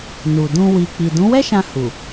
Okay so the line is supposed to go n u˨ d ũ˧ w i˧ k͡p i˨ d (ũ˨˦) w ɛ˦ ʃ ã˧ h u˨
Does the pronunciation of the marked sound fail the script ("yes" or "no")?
no